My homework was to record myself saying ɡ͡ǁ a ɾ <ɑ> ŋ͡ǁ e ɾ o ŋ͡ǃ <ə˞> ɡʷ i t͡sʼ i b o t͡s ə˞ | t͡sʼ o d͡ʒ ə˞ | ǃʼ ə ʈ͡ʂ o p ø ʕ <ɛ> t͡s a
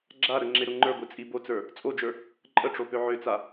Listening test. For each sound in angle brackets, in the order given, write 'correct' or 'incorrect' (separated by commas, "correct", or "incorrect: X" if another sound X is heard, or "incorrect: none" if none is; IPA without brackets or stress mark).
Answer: incorrect: ə, correct, incorrect: ø